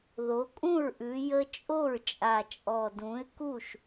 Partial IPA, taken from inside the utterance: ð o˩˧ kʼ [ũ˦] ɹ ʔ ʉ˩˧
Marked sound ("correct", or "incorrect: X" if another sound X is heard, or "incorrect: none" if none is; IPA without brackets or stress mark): incorrect: ũ˥˩